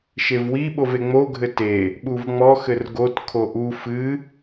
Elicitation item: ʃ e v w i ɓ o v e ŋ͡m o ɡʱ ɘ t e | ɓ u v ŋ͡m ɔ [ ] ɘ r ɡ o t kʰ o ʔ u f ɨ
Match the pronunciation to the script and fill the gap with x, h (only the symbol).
x